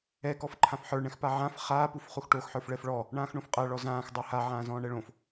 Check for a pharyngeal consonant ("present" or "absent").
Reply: present